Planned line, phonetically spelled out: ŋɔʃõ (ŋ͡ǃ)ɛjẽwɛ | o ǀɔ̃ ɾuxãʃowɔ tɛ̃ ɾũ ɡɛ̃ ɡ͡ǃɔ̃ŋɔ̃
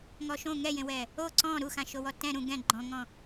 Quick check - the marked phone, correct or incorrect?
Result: incorrect